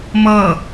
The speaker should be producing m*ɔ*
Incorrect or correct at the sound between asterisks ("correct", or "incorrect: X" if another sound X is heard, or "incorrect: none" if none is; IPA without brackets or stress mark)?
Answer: incorrect: ʌ